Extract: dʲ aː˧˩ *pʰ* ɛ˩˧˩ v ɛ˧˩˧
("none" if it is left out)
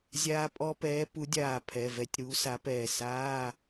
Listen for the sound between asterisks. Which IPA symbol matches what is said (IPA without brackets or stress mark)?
pʰ